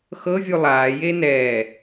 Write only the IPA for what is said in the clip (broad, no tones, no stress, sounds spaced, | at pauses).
x ɤ vʲ u lˠ aː j e n ɛː